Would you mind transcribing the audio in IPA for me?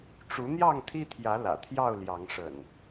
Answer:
ʈ͡ʂ u˨˦ n̪ j ɑ˥˨ ŋ t̪ʰ i˦ t̪ʰ j ä˨˦ l ä̰˨˩ t̪ʰ j ɑ˥˨ ʊ̯ l j ɑ˨˦ ŋ ʂ ə̰˨˩ n

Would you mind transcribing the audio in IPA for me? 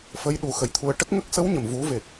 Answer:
f ə˧˥ j ɗ u˨˩˦ x ə˨˩ j t̪ʰ u˧ ə̯ ʈ ə˦˥ k̚ ŋ ə˦˥ k̚ s ə˧˥ w ɲ ə˨˩ m v u˨˩˦ v e˨˩ k̚

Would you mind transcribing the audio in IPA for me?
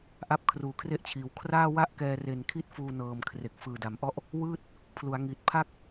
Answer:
ʔ a˦˥ p̚ kʰ r uː˩˦ kʰ r e˦˥ ʔ t͡ɕʰ iː˩˦ w kʰ r aː˥˩ w a˥˩ ʔ k ɛː˧ r e˨˩ n kʰ i˦˥ t̚ f uː˧ n ɤː˨˩ m kʰ r e˨˩ k̚ f ɯː˨˩ d a˨˩ m ʔ ɔ˥˩ ʔ | w ɯː˥˩ t̚ | pʰ l u˩˦ a̯ ŋ i˨˩ t̚ pʰ a˥˩ k̚

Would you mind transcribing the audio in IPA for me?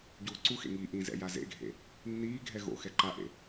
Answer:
ɟ uː ǀ u x ḛ ŋ i ʔ ĩ z ɛ̰ j a z ḛ ɡʱ ḛ | nː iː ɡʱ ɛ ɣ o̰ x ɛ ǃ a ʔ ḛ

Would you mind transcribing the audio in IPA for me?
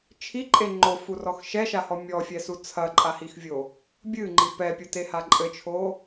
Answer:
t͡ʃʰ i ǃʼ e ŋ͡ǃ o f u r ɔ x ʃ ɛ ʃ a h ɔ mʲ ɔ fʲ ɛ s u t͡sʰ ɐ ǃʼ a h i x vʲ o | bʲ ɨ ŋ͡ǃ i p ɛ pʲ u t e h a ǃʼ ɘ t͡ʃʰ o

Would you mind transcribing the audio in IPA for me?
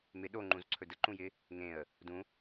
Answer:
m ɪ ɗ o ŋ͡ǃ ũ z ǀʰ ɵ d ə ǃ ũ j ɪ | ŋ ẽ ə̯ | d ũ

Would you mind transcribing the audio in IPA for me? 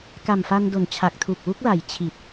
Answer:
k a˨˩ m f a˧ n d o˩˦ n t͡ɕʰ a˨˩ k̚ tʰ u˨˩ k̚ w u˦˥ k̚ l a˨˩ j t͡ɕʰ i˨˩ t̚

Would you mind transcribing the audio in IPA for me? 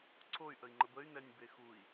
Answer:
ǀʰ o y̯ ʔ ə i̯ ŋ͡ǃ ə b ə y̯ n ɛ nʲ b e x u i̯

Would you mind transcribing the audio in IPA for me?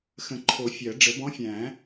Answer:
x ə̃˨˩˦ ǃʰ o˨˩˦ fʲ ɜ˨˩˦ ɖ͡ʐ ə˨˩˦ b ɔ̃˧˥ fʲ æ̃˨˩˦

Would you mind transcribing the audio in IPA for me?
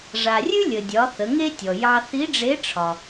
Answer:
ʐ a˩ rʲ ʉ˥ lʲ ə˩ dʲ ɒ˩˧ θ ə˩˧ ŋ e˥ tʲ ɔ˩ j ɑ˧ θ i˧˥ ɖ͡ʐ e˧˥ ʈ͡ʂʰ ɒ˩

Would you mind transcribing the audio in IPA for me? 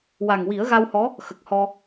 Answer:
w a˨˩ ŋ w i˨˩˦ ə̯ ɣ a˧ w h ɔ˧˥ | x ə˨˩ k̚ h ɔ˧

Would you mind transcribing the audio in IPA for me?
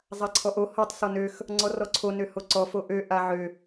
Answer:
zˤ a ǀʰ ɔ ʔ o h ɔ tˤ s ɔ n ø x | ŋ͡ǀ ɔ r ɔ ǀʰ o n ø h o ǀ ɔ f o ʔ ø ʔ a ʕ ø

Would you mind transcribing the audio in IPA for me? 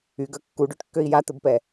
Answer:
y ɡ œ kː u ɖ ø ʈ kː ø i̯ j a t̪ ə b p ɛ

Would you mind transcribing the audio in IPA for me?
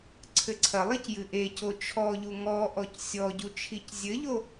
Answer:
ǀʰ ɘ ǀʰ ɐ lˠ i c j ɨ ʔ e c o t͡ʃʰ ɔ ʎ u ŋ ɔ ʔ ɔ c sʲ ɔ ɟ u t͡ʃʰ i c zʲ ɘ ʎ o

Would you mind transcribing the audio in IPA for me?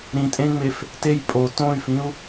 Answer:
ɾ ĩ tʼ ẽ ŋ͡m e f | t e j pʼ o t õ y̯ f ĩ u̯

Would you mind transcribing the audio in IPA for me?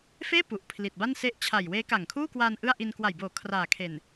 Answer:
f eː˥˩ p u˨˩ ʔ pʰ l i˨˩ t̚ b a˥˩ n s e˦˥ ʔ t͡ɕʰ a˨˩ j w eː˦˥ k a˨˩ ŋ kʰ uː˥˩ k w aː˧ n ʔ ɯ˥˩ a̯ ʔ i˧ n k w a˨˩ j b oː˨˩ kʰ r aː˨˩ kʰ e˨˩ n

